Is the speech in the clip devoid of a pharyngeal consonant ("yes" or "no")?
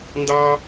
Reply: yes